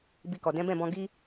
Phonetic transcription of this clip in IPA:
bi˧kɔ˨ dɛ̃˨˦bɛ̃˦˨bɔ̃˧ ɡi˦

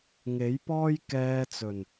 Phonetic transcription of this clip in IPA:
ŋe˨˥jpɔː˥j kɛː˧t͡sɵ˨˩n

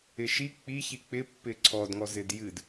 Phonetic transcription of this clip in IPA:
ɪʃi k͡pi çik͡pɪ pːɪǀʰɔd ŋɔzɪdjɨd

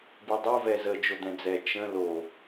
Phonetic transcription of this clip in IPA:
bidˤo vɛzə d͡ʒod̪ɛ̃d͡zɛ t͡ʃə̃ lo

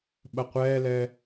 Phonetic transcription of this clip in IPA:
ɓɐqʷɛːlɛ

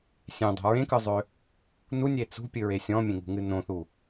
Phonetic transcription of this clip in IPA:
sʲẽdˤo̤ ɹẽkɯzˤø | nunʲe t͡sṳpʲɨɹe sʲɔ̃mʲẽŋṳŋɨ nõθu

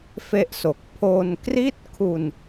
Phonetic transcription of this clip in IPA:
fe˥˩ʔso˨˩k̚ pʰo˧nkri˥˩t̚kʰu˧n

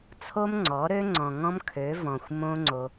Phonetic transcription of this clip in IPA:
t͡sʰo˦mŋ͡ǀɔ˨˦ɾø˦ ŋ͡ǀɔ̃˨ŋɔ̃˦mkʰø˨˦vɔ̃˨xʷ mõ˦ŋ͡ǀo˧

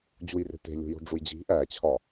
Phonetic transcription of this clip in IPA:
d͡ʑujre̤ te̤ lʲo̤jo̤ɖ͡ʐujd͡ʑi̤ ʔæt͡ɕʰɒ

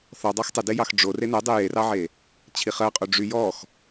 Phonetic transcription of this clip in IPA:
θɔdˤɑx tˤədejɑx ɖ͡ʐo renɛdˤe jerɑʕe | t͡ɕʰiχɜqʼo ɖ͡ʐy jɔx

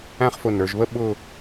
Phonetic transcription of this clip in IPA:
æ̃˥˧χfʊ˧˩nə˞˩˧ʒβə˥˧ ɓʊ˥˧

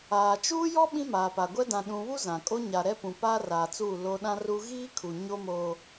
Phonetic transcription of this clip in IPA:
aː˨ t͡ʃuː˦jɔ˦ ɓĩ˦maː˨pa˨ɡʷɛ˦ dã˨ɗũ˨βu˦ zã˨kʼo˦ ɲa˨ɾɛ˦pũ˨ paː˦raː˨t͡suː˦˨ lo˦ ɗã˦ru˦ ɣiː˦kʰu˨ ɲo˦mo˨

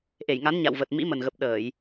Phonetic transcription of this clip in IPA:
ʔe˧˩jŋa˨˦n ɲa̰˧˨wvə˨˩t̚ mḭ˧˥mə˨˩nɣə˨˩p̚ ɗəː˧˩˨j

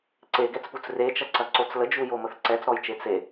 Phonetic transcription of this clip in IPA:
ǀeɡɛt͡sput͡s ret͡ʃɐǀɐǀot͡s ləd͡ʒujoməθ ǀɛt͡sɾɔjt͡ʃe t͡se

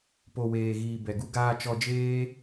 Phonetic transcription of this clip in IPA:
po˨weː˨ɣiː˨ bɛ˨ɡu˦ ɡaː˧ t͡ʃɔ˧d͡ʒeː˦

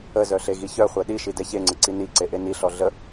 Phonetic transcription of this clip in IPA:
əzœ ɬeɣiçœχʷɛ ɗiʃi dɛçeŋ͡ǀə ǀiniǀe ʔeniɬɔ ɮə

